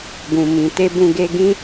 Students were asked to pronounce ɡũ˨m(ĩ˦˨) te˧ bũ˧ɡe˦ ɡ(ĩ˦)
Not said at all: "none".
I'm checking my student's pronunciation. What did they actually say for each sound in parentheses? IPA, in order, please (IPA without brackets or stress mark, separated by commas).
ĩ˨, ĩ˦